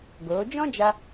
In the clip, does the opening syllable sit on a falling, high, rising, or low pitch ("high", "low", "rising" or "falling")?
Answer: rising